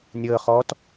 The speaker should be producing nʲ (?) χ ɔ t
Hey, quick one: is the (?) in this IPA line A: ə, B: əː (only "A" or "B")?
B